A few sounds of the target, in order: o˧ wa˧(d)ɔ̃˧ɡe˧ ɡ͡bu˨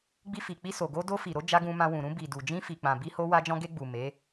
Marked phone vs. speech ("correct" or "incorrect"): incorrect